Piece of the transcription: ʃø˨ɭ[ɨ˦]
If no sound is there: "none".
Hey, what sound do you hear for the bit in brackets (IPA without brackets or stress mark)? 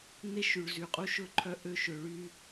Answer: y˦